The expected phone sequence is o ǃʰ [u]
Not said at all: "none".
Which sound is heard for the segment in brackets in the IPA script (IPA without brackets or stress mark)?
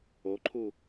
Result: u